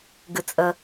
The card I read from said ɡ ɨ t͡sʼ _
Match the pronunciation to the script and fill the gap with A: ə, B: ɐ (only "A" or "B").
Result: A